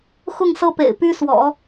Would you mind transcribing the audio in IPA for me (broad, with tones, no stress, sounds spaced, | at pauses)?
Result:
x ʊ˥˩ ŋ s ɤ˥ p ḛ˨˩ ɪ̯ p y˥ s w ɔ̰˨˩˦